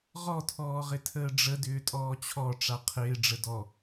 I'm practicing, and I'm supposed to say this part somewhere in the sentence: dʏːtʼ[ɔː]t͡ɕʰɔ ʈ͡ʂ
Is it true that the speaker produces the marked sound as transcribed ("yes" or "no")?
yes